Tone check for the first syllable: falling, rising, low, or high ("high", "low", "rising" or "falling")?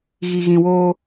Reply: low